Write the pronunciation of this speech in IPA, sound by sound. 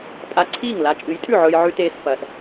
pʼ a˧ ǀʰ iː˥˨ ŋ l a˨˥ t͡ʃʼ ɨ˨˥ j tʼ ʉ˥˨ ʕ ɵː˧ j ʕ ʉ˧ t eː˧ s f ɐː˧ s

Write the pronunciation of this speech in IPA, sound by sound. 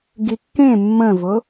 ɡ i kː ẽ mː ə̃ v ʊ

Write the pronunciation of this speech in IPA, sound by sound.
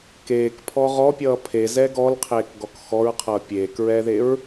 k eː k pʰ ɔ ʁ ɔ pʲ ʌː pʰ e z ɛ ɡ ɔ l qʰ eː k ɡ ɔ k x ɔ ɹ qʰ ʌː pʲ eː k ɹ ɛː ð e ɹ

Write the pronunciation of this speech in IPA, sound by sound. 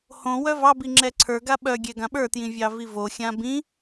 h õ w œ v ɑ b i ŋ͡ǁ ɛ ǀʰ ə˞ ɡ a ɓ œ ɡʲ ɛ ɡ ã ɓ ə˞ t j ĩ vʲ ɑ v i v o xʲ ã b ĩ

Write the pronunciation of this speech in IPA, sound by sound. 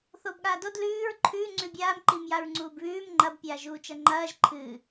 θ oː b ɠ aː d o d l ʉː ɹ ǃʰ ʉ ŋ͡ǀ ʉ bʲ aː m ǃ i m j a ɹ ŋ͡ǀ uː b β ʉː m ŋ͡ǃ ɐ b pʲ aː ʒ uː t͡ʃ ɐ ŋ͡ǃ ɐː ʒ ǃʰ ɨ

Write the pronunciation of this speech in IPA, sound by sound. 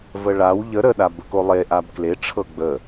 v ə ɭ a w ʎ ə ɾ ə ɗ a b ə k o lˠ e ʔ a b k l e ʈ͡ʂʰ ɤ ɡ͡b ə

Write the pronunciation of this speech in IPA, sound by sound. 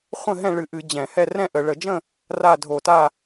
χʷ ə̃˥˨ ɦ ɛ̃˥˨ ɭ ɨ˧˩˧ ʔ ɨ˧˩˧ d͡ʑ ɛ̃˧˩˧ h ɛ˥˨ r ɛ̃˥˨ ʔ ə˧˩˧ ɭ ə˧˩˧ d͡ʒ ə̃˥˨ | r a˥˨ dʱ o˧˩˧ t a˥˨

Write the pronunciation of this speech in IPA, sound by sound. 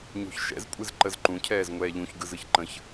ɲ o̤ ç ʃ ɛ̰ z kʷʼ ɨ z ǃ ə z ǃ ũ cʰ ɛː z ŋʷ ɛː ʎ ũ ç ɡ ɯ z ɯ ç ǃ ə̃ ç

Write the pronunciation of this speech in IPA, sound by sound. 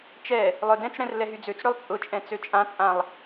t͡ʃ ɛ | lˠ œ d ɛ̃ t͡s ɽ ɛ̃ r l ɛ ɦ y d͡z ø t͡s ɽ ø lˠ t͡sʼ ʊ t͡ʃʼ ɛ̃ t͡s ø t͡ʃʼ ã t͡sʼ ã lˠ

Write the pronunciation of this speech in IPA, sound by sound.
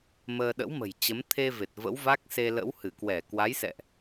m əː˧ ɗ ə̰˧˥ w m ə̤˨˩ j t͡ɕ ə˨˦ m t̪ʰ e˧ v e˨˩ t̚ v ə̰˧˥ w v a˦˥ k̚ s e˧ l ə̰˧˥ w h ɨ˧˩ k w ɛ˧˩ k w a˨˦ j s ɛ̰˧˨ ʔ

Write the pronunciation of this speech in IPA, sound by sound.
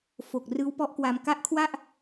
f o˨˩ k̚ r ɯː˦˥ w p ɔ˦˥ ʔ k w aː˧ m k a˦˥ ʔ kʰ w a˥˩ ʔ

